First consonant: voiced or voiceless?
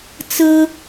voiceless